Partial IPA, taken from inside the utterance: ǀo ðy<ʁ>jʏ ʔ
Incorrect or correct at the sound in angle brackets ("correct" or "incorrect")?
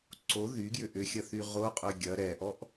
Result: incorrect